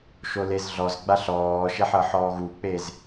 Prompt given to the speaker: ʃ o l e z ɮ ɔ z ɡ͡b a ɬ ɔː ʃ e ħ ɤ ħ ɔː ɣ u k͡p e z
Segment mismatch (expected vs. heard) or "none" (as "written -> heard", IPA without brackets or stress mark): none